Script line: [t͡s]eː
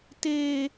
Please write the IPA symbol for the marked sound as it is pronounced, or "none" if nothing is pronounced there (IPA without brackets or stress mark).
t